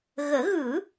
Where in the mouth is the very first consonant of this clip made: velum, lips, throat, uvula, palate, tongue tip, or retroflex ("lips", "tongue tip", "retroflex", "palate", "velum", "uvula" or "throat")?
velum